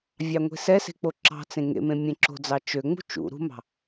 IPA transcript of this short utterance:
vʲ ɑ ŋʷ e̤ s ɛ s e̤ k͡p o ǁ ɑ̤ t͡s ẽ ŋ ḛ m ẽ mʲ ẽ ǁ o̤ d͡z ɑ t͡ʃ ø ŋ͡m ṳ t͡ʃ ṵ ɾ ṳ m ɑ̤

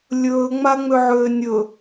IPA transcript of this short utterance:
lʲ ɵː ŋ͡m a ŋ͡m ø ʕ øː nʲ ɵ

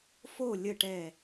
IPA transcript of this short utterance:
f o˧˩ lʲ ə˧˩ ʈ ɛ˧˩

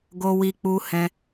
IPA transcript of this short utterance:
ɡ o˧ w i˧ k͡p u˧ h ɛ̃˧

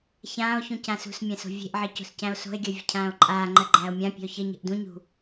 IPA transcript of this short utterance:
ç ãː o̯ ç ũ c ã s ṳ s mʲ æ̃ s o̤ vʲ e̤ ʔ ʕ ɜ c o̤ s c æ̃ o̯ s o̤ e̯ ɡʲ ɜ vʲ ə̤ cʰ ãː o̯ ǃʼ aː ŋ͡ǃ ɜ ɡ͡ǃ æː o̯ mʲ ã pʲ e̤ o̯ ç ə ɲ ə̤ ʔ d ũ ɲ ṳ

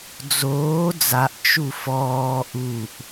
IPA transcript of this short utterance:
d͡z oː d͡z a ʔ t͡ʃ u f ɔː ʔ u ʔ

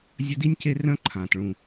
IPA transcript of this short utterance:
zʲ ɐ˦ d i˦ nʲ c e˦ r œ̃˦ ǃʰ ãː˨ t ɭ ũ˨

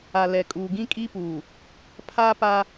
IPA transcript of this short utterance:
a˨ l ɛ˨ kʼ uː˨ ɡ ĩ˦ kʼ i˦ p uː˨ | pʰ aː˦ p a˦

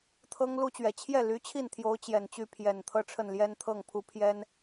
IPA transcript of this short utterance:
t̪ʰ ɤ˥ ŋ l u˥ t͡ɕ ɥ ɛ˨˩ t͡ɕʰ j ɛ˥˩ l y˧˥ t͡ɕʰ i˥˩ n t̪ʰ j o˧˥ ʊ̯ t͡ɕ j ɛ˨˩ n t͡ɕ y˥˩ pʰ j ɛ˨˩ n t̪ʰ ɤ˥˧ ʈ͡ʂʰ ə˥˩ n l j ɛ˥ n t̪ʰ ɤ˥˩ ŋ pʰ u˧˥ pʰ j ɛ˥ n

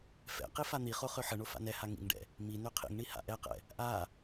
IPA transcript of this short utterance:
f ɛ̰ q i f a n̪ i χ o χ ø ħ ə ɳ o f a̰ n ɛ h a ŋ ḭ ŋ ɖ ɛ̰ | m i n ø qʰ ḭ ŋ ɳ i h a̰ ʔ ɛ q ɛ̰ | ʔ a

